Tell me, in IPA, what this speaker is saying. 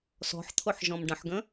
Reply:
sɔ̤ħt̪ʰoħ ʒɔ̃mɖə̃ħɡə̃

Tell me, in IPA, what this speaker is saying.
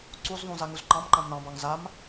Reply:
ǀuzðˤũ zaŋuzǃɑ̃mǃãm nɑ̃bɑŋ zam

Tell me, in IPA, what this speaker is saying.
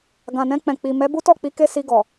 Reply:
ɡã˨nɛ̃˧ k͡pɛ̃˨k͡pi˨ mɛ˨˦bu˦tɔ˦˨k͡pi˨˦ ke˦si˧ ɡɔ˨

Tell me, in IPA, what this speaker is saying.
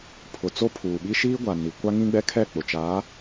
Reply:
pʰʊ˨t͡so˦pʰuː˨ɓi˦ ʃiː˦ɡʷa˨ ni˨ kʷa˦ŋĩ˦ɡ͡bɛ˦kʰɛ˦˨ k͡pʊ˨t͡ʃaː˨˦

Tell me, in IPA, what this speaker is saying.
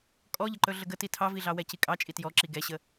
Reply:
kʼɔʎəǃɵ ɮəɡəti tʰɑviɮɑwɛ cikʼɑ t͡ʃʼitjɔǁi ɡɛɕə

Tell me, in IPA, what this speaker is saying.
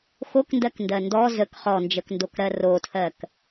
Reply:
xokndɜkndɜ ndɔ zək χɔnd͡ʒəkndokɾɜ rotʰɜk

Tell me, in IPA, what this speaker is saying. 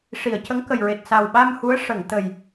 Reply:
ʂi˨˩˨ə̯cə˧˥ŋkə˨˩jɹe˨˩t̚ sa˨˩wɓa˧m hu˧˥ə̯ ʂə˨˩˨ŋt̪ə˨˩j

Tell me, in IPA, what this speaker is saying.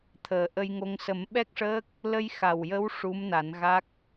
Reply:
t̪ʰəː˨˩ʔə˧jŋo˧ŋ sə˨˩˦mɓɛ˦˥k̚ʂəː˦˥k̚ | lə˧jxa˨˩wjə˧˥w ʂu˧˥mna˨˩˦nɣa˦˥k̚

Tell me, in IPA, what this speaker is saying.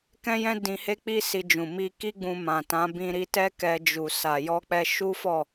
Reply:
kɛ̃˦jɛ̃˦ dĩ˧he˦k͡pi˦ si˧d͡ʒũ˨ mi˧ki˦ɡ͡bũ˧ mã˨tã˨˦ bĩ˧ɾi˧tɛ˦ kɛ˧d͡ʒu˨ sa˨jɔ˧k͡pɛ˧ ʃu˦fɔ˦˨

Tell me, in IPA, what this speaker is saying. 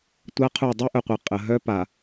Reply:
tʷa˦qʰu˦˨ dˤe˦ʔœ˨qʷɛ˨ qʼə˨ ɦœ˦pa˨

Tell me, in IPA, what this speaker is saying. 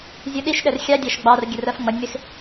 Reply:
zʲuɗiʃɗɛr xʲɑdʲɑʃ ɡ͡bɑr ɡʲərɜfŋ͡mʌnʲmɪx

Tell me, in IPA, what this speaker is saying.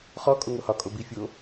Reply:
χɔ kʼoŋohɒ kʼobi fʲo

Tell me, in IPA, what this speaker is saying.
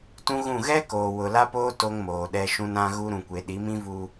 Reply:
tũ˦ɣũ˦˨ ɣɛ˦koː˨ wʊ˨la˦poː˦ to˦ŋmoː˨ɗɛ˦ ʃũ˦nã˦ɣu˦ ɾũ˨kʷe˨ ɗi˨˦mĩ˦vu˦

